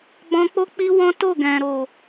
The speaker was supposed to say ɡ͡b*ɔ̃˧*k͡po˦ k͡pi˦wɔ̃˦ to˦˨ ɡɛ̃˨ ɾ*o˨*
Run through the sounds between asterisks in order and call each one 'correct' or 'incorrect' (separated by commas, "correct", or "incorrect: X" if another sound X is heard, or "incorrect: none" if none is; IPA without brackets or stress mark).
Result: correct, correct